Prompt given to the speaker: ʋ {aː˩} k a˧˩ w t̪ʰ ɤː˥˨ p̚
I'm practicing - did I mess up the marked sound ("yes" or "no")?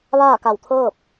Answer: yes